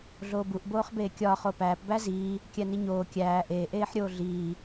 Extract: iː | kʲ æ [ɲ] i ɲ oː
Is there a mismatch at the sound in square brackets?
yes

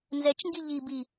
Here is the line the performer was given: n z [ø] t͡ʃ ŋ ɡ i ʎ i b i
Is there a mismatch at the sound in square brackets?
yes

